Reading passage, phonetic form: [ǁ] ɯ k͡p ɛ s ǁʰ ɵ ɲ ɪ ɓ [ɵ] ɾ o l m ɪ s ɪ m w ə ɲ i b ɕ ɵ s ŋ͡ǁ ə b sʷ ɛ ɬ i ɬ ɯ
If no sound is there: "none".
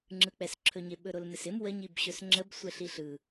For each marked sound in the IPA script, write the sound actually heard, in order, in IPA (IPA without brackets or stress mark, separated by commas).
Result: ŋ͡ǁ, ɵ